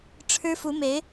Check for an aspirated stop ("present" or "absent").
present